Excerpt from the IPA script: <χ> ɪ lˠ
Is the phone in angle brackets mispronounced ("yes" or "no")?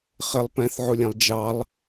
no